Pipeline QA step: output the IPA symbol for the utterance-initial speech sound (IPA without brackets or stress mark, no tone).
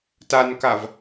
t